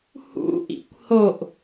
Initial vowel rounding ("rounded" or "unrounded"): rounded